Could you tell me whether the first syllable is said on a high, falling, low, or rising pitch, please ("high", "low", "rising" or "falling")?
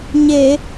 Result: low